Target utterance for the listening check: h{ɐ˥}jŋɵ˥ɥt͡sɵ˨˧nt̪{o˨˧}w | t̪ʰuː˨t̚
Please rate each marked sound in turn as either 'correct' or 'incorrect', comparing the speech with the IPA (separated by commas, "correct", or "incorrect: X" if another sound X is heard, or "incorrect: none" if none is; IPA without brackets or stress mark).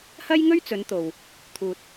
correct, incorrect: o˨